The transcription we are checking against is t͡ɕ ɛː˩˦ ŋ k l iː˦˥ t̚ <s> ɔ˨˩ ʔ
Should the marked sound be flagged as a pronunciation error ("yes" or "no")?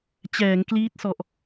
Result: no